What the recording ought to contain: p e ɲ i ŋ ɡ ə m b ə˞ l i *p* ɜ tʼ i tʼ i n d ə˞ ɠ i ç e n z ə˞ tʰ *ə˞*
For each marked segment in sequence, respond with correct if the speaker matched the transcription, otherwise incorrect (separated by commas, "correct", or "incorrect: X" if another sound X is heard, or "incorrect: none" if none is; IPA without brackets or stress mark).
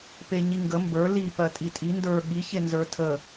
correct, incorrect: ə